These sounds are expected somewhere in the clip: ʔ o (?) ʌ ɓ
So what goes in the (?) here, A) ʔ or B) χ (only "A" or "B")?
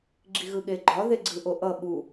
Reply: A